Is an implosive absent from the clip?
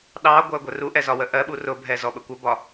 no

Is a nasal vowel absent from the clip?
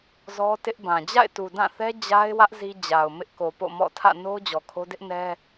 no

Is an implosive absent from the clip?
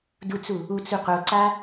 yes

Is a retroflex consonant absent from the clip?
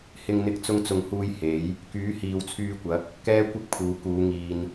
yes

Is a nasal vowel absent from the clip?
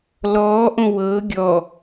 no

